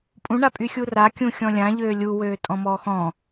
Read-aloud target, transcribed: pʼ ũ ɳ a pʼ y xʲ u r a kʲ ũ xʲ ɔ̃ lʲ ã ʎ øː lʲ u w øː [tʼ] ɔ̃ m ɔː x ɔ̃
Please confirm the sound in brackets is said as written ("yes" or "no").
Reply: yes